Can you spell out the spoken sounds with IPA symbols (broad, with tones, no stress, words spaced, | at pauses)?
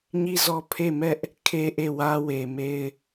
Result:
ɲi˦˨zɔ˦˨ pʰe˦˨mɛ˦ʔ | kʰe˦ʔe˦˨ wä˦we˨ me˦ɪ̯